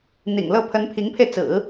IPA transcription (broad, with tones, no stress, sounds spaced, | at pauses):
n̪ ḭ˨˩ ŋ l ɤ˥˩ pʰ ə˧˥ n pʰ i˧˥ ŋ pʰ e˧ ɪ̯ t͡s ɹ̩˨˩˦